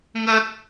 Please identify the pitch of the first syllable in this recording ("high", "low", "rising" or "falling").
high